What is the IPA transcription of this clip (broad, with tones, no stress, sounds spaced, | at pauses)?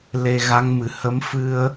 l e˧ ɣ a˧˥ ŋ m ɨ˨˩ h ə˧˥ m f ɨ˧ ə̯